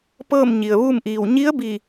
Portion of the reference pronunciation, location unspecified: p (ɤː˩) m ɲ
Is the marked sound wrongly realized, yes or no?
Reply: yes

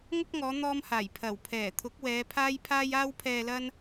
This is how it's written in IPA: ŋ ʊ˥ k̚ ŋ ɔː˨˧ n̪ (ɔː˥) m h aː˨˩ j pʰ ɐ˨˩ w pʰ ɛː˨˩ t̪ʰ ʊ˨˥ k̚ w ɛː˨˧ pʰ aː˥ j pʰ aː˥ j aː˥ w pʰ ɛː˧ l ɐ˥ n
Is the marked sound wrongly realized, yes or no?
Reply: no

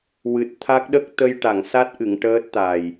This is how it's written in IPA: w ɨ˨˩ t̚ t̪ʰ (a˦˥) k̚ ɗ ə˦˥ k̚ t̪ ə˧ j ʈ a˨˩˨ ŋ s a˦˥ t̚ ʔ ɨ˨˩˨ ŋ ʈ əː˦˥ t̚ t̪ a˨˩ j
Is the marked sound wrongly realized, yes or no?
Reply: no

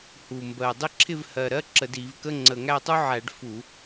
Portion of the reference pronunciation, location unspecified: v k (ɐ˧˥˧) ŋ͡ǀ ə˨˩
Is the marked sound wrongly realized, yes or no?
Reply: yes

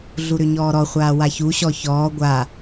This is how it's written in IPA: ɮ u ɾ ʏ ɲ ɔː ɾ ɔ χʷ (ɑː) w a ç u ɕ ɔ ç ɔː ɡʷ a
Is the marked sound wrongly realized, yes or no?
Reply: yes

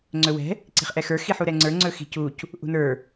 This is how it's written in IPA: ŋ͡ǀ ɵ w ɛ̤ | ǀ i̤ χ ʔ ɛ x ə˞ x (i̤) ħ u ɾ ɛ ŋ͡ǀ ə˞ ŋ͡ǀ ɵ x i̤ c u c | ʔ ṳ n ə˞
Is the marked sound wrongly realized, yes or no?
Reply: yes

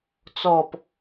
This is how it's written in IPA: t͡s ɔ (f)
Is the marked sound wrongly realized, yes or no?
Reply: yes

